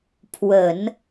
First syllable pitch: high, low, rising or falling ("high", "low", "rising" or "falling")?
low